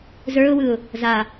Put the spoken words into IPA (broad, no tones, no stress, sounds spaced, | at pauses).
z ə˞ ʊ̯ w ɯ ʊ̯ | z a